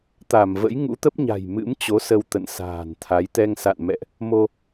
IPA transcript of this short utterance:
t̪ a˧˩ m v ə̰˧˥ j ŋ ṵ˧˥ t̪ ə˦˥ p̚ ɲ a̤˨˩ j m ɨ̰˧˥ m t͡ɕ o˨˦ s ə˧ w t̪ ə̰˧˨ n s a̤ː˨˩ n t̪ʰ a˨˦ j t̪ ɛ˧ ŋ s a̰˧˨ n m ɛ̰˧˨ ʔ | m o˧

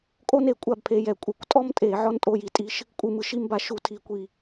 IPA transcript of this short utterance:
kʼ o˥ n e˧˩˧ kʷʼ a˥˨ b pʰ e˨˦ j ɛ˨˩ kʷʼ ɯ˧˩˧ kʷ tʼ ɔ˥ m tʼ e˧˩˧ ʕ ɔ˥ n tʼ o˧˥˧ j i˧˩˧ tʼ i˧˥˧ ʃ | kʷʼ ɯ˥˨ m ɯ˥˨ ʃ i˥ m b a˨˩ ʃ u˧˩˧ tʰ i˧˩˧ kʷ i˥˨

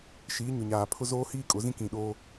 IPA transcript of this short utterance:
ʃ iː˨˦ ɲ ʊ˨ ɲ aː˨ pʰ ʊ˦ z oː˦ h iː˦ kʼ ʊ˨˦ z ĩ˦ k ĩ˨ ɗ oː˦

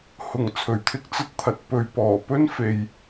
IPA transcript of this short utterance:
h ʊ˨˩ ŋ t͡sʰ ɵ˨˩ ɥ t̪ʰ ɪ˥ k̚ t͡s ɐ˥ t̚ t̪ʰ ɐ˨ t̚ p ɵ˨ ɥ p ɔː˨˩ p ɵ˥ n f e˨ j

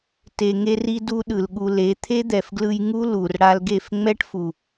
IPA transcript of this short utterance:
t e˧ ŋ e˦ r i˦ d u˦ ɗ ɯ˨ l ɠ u˧ l e˨˦ t̪ʰ e˦ d̪ ɛ˨ f ɡ l ɯ˧ j ŋ u˦ l u˨ r ɽ a˧ l ɡ e˦˨ f ŋ͡m ɛ˦ ʈ f u˨

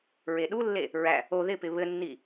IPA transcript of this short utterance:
ɹ e ɗ u lː e | ɹ æ | o ð ɪ p ɪ β ɘ nː i

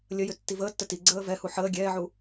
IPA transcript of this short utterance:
lʲ ə j ʏ tː i v əː tː ə t i ɡ͡ǀ əː v ɛ h u ħ əː ɡʲ ɛː ʕ u

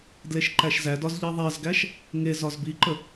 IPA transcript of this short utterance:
d l e ʃ ǃ æ ʃ z æ d ɒ z ʎ i ðˤ æ z ɡ æ ʃ | ŋ e z ɒ z b i ǃ ə

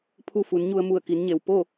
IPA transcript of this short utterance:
pʰ u˧ f u˩˧ n ɲ u˧ ə̯ m u˧˩ ə̯ k i˩˧ n ɲ e˩ w p o˥˨

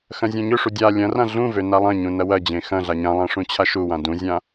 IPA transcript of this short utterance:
x ɐ̃ zʲ ẽ ɲ ø ʂ u dʲ a lʲ ɐ̃ r ã ɮ ũ v ø n a lˠ ɐ̃ ɲ ũ n ɐ w ɐ d͡ʑ ẽ x ɐ̃ ɮ a ɲ ã lˠ ã ʂ ũ t͡ɕʰ a ʃ u w ã d ũ zʲ ã

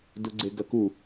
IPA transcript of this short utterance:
d u ɡ͡ǀ e ɡ ɐ k u

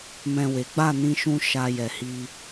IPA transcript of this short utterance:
m ɛ̃˨ w e˨˦ ɡ͡b a˦˨ n ĩ˧ ʃ ũ˧ ʃ a˧ j ɛ˨ h i˧

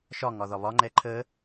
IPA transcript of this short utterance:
ʃ ɒ ŋ ɒ ð ɒ β ɒ ŋ͡ǃ ɛ ǃʰ ə

